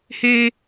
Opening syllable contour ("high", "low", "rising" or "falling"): high